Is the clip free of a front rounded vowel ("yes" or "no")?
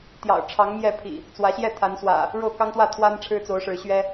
yes